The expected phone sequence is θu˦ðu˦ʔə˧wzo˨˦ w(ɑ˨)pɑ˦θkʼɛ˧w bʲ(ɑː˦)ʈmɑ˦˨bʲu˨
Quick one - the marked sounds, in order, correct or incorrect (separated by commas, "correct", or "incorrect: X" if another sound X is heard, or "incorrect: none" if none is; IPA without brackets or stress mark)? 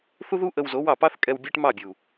incorrect: ɑ˦˨, incorrect: ɑ˦